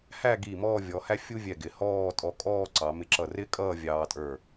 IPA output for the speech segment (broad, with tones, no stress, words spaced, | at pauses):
hæ˥˧ɡi˧˩ mɔ˥˧vʲɔ˩˧hæ˥ fʲu˥vʲɛ˧˩ɡɪ˩˧ hɔː˥˧ tʼɔ˧kʼɔː˥˧ǀɑ˩˧ mɪ˧ǁʌ˧˩rɪ˥kʼʌː˥˧ vʲɑː˧tʼə˞˧˩